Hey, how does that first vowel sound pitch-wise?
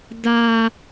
high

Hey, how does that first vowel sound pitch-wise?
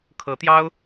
rising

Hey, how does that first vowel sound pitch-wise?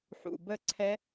low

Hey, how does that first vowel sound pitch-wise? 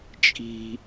high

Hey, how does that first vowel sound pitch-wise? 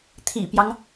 low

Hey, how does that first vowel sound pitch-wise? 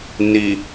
low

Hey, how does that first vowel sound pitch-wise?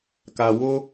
low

